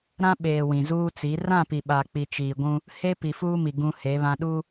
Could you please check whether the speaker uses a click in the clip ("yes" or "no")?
no